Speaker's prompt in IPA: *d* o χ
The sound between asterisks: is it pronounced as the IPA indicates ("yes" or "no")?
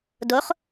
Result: yes